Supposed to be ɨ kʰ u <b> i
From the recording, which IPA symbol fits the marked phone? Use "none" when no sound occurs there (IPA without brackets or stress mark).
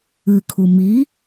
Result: m